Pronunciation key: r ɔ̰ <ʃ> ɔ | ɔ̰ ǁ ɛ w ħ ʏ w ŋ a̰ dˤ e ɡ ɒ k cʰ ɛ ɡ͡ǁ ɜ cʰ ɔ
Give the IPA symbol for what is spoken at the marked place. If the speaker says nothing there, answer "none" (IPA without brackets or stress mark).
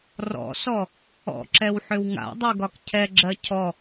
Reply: s